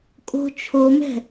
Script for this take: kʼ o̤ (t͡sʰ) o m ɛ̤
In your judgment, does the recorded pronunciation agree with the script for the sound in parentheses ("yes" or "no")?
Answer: no